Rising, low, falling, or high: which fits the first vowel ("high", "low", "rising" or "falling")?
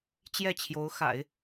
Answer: falling